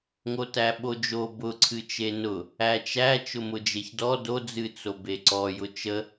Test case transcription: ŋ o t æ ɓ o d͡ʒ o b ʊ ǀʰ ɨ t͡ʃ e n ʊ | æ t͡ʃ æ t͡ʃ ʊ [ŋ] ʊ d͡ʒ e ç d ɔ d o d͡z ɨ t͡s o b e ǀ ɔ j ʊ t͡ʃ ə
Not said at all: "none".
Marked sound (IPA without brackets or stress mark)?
m